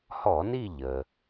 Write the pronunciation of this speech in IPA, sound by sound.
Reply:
h ɔ˧˩˧ n i˦˨ ʎ ə˩

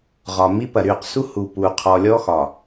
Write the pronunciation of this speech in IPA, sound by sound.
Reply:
ʁ ɒ˨ m i˦ p ɐ˨ ɾ y˦˨ q s u˦ h u˨ p u˨ qʰ ɔ˨ lʲ ɔ˦ x ɒ˨

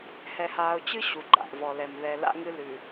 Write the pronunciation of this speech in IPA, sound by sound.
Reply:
h ɛ˨ h aː˨ ʊ̯ t͡ɕ ɨ˦ ɕ u˨ ɡ͡ǃ a̰˨ ʔ v ɔ˨ l ɛ˨ m ð ɛ˨ l a̰˦ ŋ ɨ˦ l ʉ˨

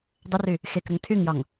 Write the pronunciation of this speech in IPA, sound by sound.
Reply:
dˤ ə r y | x e k ɾ ə ŋ tʰ y ŋ j ɒ ŋ

